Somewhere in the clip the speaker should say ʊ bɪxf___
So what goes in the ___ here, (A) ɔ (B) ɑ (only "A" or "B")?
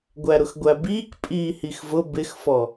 A